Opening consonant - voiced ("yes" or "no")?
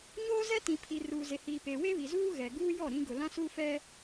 yes